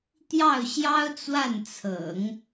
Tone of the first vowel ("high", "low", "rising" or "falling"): falling